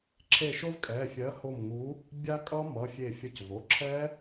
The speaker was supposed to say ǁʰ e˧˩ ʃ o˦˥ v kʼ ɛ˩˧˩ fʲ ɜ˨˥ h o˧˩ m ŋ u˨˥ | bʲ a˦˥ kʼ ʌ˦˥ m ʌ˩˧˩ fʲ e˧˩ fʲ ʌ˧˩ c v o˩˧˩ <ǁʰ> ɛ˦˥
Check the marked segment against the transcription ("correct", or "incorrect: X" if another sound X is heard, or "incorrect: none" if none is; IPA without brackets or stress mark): correct